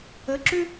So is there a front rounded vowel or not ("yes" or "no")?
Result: yes